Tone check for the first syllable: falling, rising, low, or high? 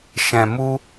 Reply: low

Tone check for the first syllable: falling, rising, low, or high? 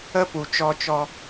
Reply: high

